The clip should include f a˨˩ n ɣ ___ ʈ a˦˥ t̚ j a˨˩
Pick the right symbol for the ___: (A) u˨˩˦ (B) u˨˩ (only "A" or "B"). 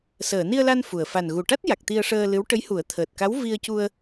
B